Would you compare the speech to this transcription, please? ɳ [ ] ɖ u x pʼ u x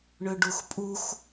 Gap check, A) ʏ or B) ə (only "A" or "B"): A